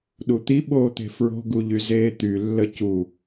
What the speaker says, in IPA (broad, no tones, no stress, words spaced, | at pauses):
ɗut̪i ɓoːt̪e̤fɹo̤ ɡuʎyzeːt̪y lːəcu